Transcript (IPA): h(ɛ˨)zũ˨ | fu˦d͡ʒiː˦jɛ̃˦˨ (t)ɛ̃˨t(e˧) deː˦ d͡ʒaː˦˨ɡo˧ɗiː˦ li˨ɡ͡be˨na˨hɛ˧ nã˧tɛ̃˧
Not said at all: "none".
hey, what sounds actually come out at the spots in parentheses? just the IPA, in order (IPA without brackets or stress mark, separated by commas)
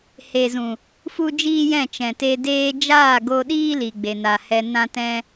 e˨, t͡ʃ, e˧